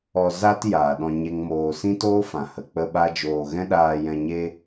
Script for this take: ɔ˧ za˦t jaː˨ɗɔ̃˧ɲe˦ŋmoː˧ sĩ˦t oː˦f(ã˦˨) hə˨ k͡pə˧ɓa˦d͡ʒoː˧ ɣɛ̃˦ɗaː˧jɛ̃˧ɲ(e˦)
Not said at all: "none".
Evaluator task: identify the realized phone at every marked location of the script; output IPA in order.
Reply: ã˨, e˦

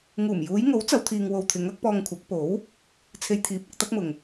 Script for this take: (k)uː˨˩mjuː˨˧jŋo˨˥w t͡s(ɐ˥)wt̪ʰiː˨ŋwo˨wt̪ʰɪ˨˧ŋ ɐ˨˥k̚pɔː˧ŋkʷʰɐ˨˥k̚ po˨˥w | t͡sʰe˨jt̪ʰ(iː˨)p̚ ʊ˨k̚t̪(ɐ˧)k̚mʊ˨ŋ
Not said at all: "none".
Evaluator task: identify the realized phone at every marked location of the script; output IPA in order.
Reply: ŋ, ɐ˨˧, iː˨˥, ɐ˥

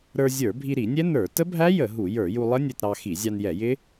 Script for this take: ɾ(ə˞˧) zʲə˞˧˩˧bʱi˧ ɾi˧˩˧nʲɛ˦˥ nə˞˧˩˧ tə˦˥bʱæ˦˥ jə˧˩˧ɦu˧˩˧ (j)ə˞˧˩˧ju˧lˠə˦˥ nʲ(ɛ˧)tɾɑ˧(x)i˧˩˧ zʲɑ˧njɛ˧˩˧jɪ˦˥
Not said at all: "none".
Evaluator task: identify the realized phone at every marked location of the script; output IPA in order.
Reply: ə˞˧, j, ɛ˧, x

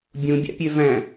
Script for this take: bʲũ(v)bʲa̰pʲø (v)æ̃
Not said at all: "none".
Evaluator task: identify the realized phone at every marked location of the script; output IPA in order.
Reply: none, v

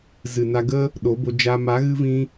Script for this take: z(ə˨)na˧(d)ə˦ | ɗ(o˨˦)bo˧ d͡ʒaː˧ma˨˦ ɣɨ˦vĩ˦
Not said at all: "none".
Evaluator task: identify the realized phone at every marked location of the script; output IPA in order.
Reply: ɨ˨, ɡ, o˨˦

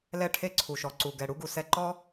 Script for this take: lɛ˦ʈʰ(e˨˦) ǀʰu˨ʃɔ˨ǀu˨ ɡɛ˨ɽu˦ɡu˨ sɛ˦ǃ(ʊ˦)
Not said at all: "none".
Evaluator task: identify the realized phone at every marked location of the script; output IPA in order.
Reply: e˦, ɔ˦

